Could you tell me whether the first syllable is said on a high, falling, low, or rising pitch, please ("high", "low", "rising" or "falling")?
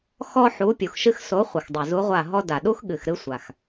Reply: high